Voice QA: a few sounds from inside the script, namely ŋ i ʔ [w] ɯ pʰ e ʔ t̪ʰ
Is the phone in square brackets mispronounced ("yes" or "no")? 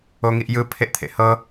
yes